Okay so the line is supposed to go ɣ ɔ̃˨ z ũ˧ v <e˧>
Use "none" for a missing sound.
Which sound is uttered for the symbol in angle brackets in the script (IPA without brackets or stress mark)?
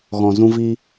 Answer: i˧